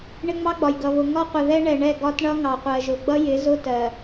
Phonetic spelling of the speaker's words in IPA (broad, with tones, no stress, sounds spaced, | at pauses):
ɳ ɪ˦ ŋ͡m ɑ˦ ɡ͡b ɒ˨ j ɡ ʌ˨ β ʊ˨ ŋ ɒ˦ qʷ ə˨ ð ɛ˦ ɳ ɛ˨ ɳ ɛ˦˨ ɡ ɒ˦ t ɳ ʌ˦ ŋ ɑ˨ qʷ ɜ˨ ʒ ʊ˨ ɡ͡b ʌ˦ j ɪ˨˦ z ʊ˦ t ɜ˨